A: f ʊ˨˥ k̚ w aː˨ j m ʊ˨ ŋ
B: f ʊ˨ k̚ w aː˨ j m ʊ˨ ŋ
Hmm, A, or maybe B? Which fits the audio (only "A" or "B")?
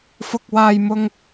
B